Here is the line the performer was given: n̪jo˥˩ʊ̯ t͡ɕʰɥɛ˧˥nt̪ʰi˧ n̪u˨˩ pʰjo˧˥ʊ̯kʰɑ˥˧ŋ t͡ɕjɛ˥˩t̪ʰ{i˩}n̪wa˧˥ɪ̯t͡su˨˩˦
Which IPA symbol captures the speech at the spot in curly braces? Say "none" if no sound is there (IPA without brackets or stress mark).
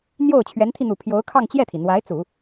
i˩